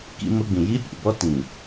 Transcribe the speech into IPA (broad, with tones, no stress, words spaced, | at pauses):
kḭ˦mʊ˦ɡ͡bĩ˨ ji˦pʲṵ˨bɔ˦ tĩ˨